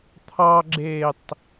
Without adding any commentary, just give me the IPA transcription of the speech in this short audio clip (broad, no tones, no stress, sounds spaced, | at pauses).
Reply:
t̪ʰ ɑ ɡ͡ǁ eː tˤ